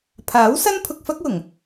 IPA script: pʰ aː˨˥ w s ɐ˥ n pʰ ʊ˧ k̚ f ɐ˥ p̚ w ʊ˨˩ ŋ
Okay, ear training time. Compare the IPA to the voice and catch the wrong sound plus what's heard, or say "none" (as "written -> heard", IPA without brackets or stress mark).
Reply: p̚ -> k̚